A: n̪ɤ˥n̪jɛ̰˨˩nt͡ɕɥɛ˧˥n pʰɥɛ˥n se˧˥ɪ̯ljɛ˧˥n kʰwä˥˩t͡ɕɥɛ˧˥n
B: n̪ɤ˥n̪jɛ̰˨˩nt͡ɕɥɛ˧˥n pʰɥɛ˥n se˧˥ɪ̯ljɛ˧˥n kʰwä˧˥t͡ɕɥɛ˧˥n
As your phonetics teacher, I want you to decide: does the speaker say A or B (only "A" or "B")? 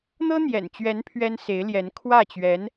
A